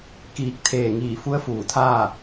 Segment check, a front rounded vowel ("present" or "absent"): absent